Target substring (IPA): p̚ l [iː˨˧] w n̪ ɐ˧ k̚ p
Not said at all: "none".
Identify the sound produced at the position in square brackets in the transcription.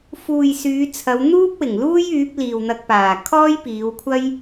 iː˨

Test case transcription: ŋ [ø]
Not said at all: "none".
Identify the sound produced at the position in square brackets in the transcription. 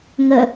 ə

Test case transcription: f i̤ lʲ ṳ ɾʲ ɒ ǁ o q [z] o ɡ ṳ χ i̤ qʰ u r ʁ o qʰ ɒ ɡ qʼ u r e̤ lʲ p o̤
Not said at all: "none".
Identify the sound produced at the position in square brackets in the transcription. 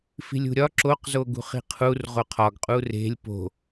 z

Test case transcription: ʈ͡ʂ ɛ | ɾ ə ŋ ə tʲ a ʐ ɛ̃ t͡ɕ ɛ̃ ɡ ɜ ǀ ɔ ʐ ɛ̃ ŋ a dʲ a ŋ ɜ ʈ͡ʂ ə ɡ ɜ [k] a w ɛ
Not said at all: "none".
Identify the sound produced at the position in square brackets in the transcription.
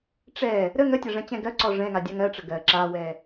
ǁ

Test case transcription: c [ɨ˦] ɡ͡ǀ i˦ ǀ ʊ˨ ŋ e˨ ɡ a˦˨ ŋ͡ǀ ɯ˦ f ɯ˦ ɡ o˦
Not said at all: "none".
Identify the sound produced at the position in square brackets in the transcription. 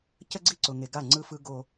ə˦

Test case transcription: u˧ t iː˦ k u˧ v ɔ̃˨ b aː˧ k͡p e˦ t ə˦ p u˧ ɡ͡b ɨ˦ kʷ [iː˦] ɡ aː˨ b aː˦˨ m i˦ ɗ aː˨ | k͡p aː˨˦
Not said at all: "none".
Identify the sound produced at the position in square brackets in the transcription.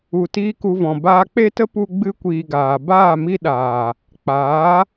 iː˧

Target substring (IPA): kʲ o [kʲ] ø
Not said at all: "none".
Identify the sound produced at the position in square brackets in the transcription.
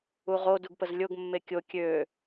kʲ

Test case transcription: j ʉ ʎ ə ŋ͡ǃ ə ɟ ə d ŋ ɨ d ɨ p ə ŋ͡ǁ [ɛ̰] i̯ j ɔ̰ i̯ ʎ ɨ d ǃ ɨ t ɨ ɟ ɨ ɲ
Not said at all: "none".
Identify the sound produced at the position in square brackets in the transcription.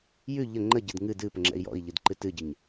ɛ̰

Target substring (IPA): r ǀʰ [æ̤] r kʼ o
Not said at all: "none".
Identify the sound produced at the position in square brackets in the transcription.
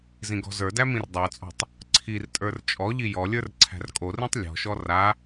æ̤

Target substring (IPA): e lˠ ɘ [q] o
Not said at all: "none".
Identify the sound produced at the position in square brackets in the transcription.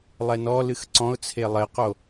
q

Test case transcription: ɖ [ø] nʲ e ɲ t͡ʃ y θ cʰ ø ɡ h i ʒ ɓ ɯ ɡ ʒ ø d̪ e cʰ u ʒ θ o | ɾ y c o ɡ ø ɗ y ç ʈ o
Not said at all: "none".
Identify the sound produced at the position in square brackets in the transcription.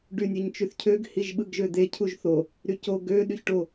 y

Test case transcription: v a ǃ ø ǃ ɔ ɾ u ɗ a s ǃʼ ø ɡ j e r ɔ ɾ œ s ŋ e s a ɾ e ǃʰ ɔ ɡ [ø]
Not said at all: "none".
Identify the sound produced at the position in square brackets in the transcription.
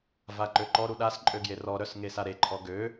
ø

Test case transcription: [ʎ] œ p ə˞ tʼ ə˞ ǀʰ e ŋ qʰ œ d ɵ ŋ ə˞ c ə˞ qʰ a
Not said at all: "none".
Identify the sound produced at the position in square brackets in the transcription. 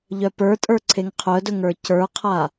ʎ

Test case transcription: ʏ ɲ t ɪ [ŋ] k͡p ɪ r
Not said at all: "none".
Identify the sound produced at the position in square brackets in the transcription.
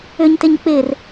ɲ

